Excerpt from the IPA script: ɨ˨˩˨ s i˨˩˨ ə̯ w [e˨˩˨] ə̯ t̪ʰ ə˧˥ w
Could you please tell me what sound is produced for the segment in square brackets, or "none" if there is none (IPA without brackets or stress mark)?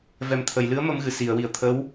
i˨˩˨